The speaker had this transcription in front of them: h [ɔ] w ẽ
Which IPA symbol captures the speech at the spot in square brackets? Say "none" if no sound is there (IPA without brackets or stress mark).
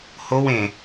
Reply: o